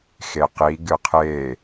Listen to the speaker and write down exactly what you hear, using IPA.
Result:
x e q i ɡ ɨ qʰ e

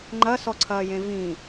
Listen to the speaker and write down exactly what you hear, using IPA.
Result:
ŋ͡ǃ ɐ s ɔ ǀʰ ɐː j ẽ v ĩ

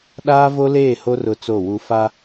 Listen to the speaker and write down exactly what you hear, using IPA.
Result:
ɗ aː˦ v o˦ l eː˦˨ h o˦ r ʊ˦˨ t͡s o˦˨ w u˦ f a˦

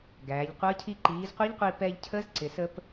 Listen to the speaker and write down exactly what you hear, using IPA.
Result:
ɡ æː˩˧ ʎ qʷ ʌː˧˥ cʰ i˧ ǃ iː˩˧ z qʷ i˧˥ ʎ qʷ iː˧ p ɛː˧ ʎ cʰ əː˧˥ z ǀ ɪ˩ s ə˧ p

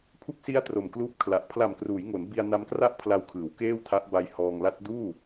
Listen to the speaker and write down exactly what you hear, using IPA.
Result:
pʰ u˦˥ k̚ s i˦˥ a̯ t r o˨˩ m k l uː˦˥ p̚ kʰ l a˨˩ ʔ pʰ l a˨˩ m k r uː˩˦ j ŋ o˩˦ n b i˧ a̯ n a˦˥ m k r a˥˩ ʔ pʰ l a˧ w kʰ ɯː˩˦ w k eː˥˩ w tʰ a˦˥ ʔ b a˧ j h ɔː˧ ŋ l a˦˥ t̚ d uː˥˩

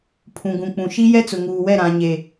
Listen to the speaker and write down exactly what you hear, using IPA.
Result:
pʰ ũ˨ ɡ ũ˨ k͡p ũ˨ ʃ i˦ j ɛ˦ t͡s ʊ˨ ŋ uː˨ w ɛ˦˨ ɾ ã˨ ɲ e˨

